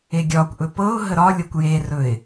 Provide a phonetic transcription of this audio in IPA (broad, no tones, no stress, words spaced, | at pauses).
eɡʲɒkʷʔɵ pɤʊ̯ ɦəɾɒlʲɤkʷ jerɵɪ̯